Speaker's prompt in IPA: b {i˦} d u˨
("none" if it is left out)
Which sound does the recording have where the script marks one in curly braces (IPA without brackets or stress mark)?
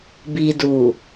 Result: i˨